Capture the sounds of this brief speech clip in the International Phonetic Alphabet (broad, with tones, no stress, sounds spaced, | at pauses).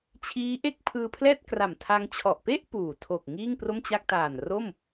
t͡ɕʰ iː˦˥ ʔ e˥˩ k̚ pʰ ɯː˧ pʰ l ɛː˥˩ t̚ k r a˨˩ m tʰ a˧ ŋ t͡ɕʰ ɔ˨˩ ʔ p e˥˩ ʔ p uː˨˩ tʰ o˨˩ k̚ ŋ iː˥˩ ŋ p r o˥˩ m t͡ɕ a˥˩ k̚ t aː˨˩ n r o˥˩ m